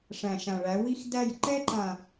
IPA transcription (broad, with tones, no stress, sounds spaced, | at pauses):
ʂ æ̃˨ ʃ ã˨ ɭ æ˨˦ w i˦ x d æ˦˨ j ǃ ɛ˦ ǃ ã˨